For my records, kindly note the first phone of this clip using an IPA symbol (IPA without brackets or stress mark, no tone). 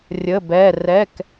rʲ